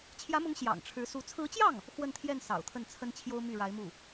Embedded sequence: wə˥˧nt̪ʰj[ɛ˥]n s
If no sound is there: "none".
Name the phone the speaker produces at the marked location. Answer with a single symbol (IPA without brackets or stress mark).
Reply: ɛ˥˩